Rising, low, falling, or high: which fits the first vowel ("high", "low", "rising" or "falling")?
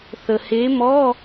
low